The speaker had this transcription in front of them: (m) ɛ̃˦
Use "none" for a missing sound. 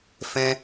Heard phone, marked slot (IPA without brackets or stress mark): f